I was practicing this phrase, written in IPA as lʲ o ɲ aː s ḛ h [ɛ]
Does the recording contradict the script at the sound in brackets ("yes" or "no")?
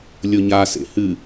yes